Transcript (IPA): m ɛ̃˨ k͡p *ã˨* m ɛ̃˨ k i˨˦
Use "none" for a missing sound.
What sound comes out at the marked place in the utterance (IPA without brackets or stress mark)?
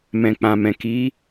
ã˨